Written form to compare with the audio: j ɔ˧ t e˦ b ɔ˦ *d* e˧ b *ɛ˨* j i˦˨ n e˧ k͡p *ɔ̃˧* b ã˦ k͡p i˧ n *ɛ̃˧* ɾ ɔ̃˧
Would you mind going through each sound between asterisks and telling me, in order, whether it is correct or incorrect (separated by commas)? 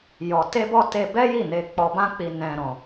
incorrect, incorrect, incorrect, correct